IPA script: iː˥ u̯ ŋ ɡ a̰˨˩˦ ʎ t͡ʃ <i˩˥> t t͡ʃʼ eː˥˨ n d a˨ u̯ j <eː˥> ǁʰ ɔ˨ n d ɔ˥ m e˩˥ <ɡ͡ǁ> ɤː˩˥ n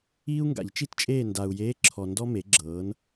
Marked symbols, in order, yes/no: no, no, yes

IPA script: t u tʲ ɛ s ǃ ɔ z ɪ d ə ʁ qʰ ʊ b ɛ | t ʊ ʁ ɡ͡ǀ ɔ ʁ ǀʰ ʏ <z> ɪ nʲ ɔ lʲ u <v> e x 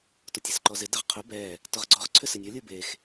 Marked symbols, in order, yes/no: no, no

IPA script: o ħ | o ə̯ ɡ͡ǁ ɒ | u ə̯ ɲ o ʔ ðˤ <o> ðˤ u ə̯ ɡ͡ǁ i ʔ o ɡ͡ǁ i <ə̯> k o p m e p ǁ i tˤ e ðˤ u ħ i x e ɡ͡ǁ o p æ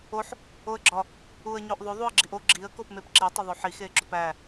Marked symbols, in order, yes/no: yes, yes

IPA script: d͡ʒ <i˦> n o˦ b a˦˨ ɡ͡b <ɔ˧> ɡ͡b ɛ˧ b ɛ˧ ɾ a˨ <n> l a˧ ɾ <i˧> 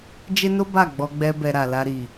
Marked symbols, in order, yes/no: no, yes, no, no

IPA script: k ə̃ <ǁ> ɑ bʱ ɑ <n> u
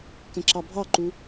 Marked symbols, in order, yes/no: yes, no

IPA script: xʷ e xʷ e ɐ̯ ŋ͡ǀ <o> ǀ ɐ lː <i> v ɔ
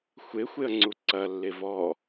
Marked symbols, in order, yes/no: no, no

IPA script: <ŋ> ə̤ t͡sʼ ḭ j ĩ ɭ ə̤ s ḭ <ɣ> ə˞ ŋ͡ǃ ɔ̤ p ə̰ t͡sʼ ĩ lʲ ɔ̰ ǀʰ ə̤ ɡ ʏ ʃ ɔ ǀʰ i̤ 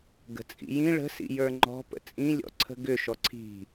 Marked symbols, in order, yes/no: no, no

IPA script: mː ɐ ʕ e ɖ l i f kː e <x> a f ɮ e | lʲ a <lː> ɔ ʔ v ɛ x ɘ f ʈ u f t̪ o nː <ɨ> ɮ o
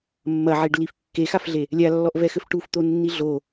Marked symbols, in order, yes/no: yes, yes, no

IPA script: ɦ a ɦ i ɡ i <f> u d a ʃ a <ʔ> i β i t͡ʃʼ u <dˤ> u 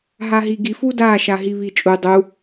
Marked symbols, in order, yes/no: yes, no, yes

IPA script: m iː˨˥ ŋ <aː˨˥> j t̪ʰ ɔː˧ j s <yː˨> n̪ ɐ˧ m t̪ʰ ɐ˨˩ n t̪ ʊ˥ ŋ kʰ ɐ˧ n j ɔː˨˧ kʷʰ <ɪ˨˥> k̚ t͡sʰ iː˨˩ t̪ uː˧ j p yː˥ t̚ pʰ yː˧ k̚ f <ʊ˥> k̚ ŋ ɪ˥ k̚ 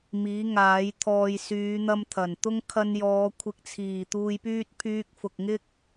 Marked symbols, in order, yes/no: yes, no, yes, no

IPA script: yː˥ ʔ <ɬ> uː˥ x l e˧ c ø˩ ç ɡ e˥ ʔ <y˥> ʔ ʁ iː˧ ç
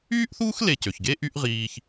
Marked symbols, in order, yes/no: no, yes

